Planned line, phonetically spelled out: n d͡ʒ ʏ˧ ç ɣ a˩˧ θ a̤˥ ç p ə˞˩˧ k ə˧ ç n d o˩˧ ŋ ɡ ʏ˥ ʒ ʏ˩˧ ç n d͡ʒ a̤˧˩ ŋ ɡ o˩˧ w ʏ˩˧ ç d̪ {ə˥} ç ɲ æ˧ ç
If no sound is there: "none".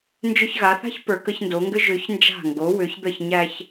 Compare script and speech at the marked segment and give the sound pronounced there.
ə˧˩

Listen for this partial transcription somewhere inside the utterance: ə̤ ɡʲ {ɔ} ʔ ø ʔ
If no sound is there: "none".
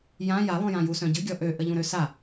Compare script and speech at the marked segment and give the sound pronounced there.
ɔ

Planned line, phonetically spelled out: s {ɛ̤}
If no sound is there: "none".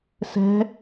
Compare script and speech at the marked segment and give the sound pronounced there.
ɛ̤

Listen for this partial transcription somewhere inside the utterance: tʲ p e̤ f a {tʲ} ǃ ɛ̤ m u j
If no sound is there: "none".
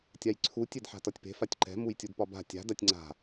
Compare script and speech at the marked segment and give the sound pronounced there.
tʲ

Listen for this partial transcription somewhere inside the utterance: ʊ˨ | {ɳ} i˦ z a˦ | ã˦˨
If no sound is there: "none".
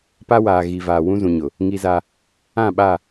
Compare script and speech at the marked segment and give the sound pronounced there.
ŋ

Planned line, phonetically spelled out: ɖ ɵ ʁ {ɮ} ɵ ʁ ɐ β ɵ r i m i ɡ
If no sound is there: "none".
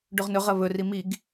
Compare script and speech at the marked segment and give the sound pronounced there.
n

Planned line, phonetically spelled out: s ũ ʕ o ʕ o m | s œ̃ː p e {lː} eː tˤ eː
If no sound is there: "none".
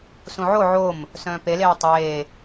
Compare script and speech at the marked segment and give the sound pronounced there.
l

